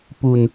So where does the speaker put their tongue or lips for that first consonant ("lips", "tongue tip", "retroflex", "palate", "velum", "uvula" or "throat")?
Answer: lips